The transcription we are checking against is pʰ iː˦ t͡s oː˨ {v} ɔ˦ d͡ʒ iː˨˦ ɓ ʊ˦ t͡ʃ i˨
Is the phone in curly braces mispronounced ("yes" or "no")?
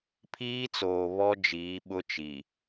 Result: yes